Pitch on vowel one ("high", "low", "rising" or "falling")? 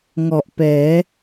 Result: low